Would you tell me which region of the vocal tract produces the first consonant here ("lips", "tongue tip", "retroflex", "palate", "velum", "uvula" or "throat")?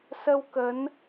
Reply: tongue tip